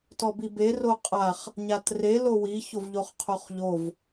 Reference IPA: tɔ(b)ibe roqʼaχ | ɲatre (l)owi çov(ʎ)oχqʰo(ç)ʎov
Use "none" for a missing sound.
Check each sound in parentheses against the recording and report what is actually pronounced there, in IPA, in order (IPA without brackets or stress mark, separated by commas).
b, l, ʎ, χ